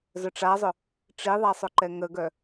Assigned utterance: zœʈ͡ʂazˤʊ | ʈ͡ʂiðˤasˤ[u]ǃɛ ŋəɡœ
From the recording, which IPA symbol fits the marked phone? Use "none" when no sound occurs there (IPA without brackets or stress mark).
ʊ